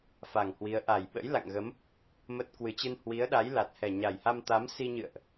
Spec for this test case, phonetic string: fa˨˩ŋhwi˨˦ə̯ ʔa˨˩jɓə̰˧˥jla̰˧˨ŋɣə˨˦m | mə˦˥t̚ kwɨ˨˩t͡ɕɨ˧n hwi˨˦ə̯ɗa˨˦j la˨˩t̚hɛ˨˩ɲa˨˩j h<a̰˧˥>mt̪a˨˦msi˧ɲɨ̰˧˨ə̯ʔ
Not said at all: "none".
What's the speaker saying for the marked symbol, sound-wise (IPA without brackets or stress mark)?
a˧